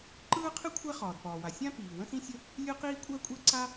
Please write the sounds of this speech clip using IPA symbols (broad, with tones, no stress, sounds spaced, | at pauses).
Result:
ǃ ɯː˥ qʰ ɨ˥ kʷʰ æ˥ χ ɒː˩ d p ɒː˩ w a˩ sʲ ã˥ p iː˩ w ə̃˥ s ĩ˥ sʲ ə˥ | lʲ ɯ˥ q iː˥ kʷʼ æ˥ kʷʼ ɛ˥ ǀ a˥